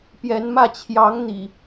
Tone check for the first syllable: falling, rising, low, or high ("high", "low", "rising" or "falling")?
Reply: rising